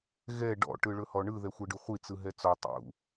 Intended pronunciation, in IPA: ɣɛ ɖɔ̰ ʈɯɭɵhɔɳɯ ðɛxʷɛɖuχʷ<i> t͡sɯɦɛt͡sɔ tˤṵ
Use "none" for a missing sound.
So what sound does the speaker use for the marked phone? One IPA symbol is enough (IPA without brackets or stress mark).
i